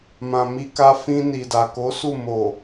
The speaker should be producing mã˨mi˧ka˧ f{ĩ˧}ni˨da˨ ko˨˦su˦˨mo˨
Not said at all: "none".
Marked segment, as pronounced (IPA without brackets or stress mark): ĩ˧